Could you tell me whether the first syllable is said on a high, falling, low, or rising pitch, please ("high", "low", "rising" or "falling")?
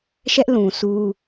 high